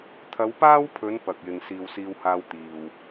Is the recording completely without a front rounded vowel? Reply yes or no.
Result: yes